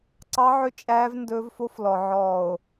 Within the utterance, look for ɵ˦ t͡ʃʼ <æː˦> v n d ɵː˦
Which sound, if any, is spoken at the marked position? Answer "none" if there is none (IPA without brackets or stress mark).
æː˦